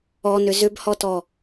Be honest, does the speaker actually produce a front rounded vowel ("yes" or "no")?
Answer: yes